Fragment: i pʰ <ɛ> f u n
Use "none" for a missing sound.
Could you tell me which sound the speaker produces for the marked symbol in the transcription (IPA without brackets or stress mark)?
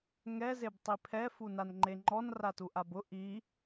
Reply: ɛ